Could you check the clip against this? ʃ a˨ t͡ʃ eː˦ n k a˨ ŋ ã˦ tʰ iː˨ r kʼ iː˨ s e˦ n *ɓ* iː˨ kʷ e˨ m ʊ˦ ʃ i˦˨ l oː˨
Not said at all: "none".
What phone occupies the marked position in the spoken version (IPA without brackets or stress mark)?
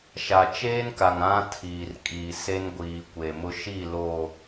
ɡʷ